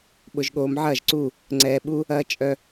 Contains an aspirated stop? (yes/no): no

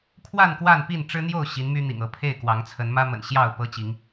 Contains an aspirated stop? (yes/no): yes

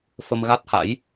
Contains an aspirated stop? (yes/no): no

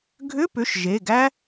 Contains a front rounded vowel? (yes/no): yes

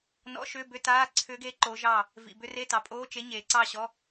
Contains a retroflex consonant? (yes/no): no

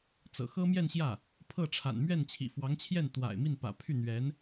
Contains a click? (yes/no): no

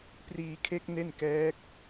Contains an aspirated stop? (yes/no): yes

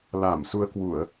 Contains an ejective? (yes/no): no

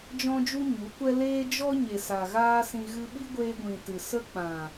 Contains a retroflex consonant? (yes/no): no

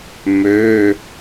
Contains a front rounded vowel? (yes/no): yes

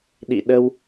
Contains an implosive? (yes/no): yes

